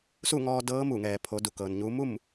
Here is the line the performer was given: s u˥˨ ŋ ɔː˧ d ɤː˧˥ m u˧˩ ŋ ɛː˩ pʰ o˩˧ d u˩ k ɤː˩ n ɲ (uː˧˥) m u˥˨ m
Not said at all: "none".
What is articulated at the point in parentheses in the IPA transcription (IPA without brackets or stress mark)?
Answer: uː˧˥